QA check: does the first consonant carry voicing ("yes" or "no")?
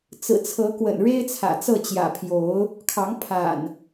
no